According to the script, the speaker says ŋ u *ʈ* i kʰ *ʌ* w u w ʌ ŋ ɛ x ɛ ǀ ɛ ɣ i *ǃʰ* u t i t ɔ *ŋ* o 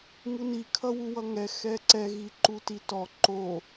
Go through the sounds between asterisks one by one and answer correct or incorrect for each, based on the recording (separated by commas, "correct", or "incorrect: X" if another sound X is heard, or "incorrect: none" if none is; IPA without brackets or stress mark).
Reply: incorrect: n, correct, incorrect: ǃ, incorrect: ǃ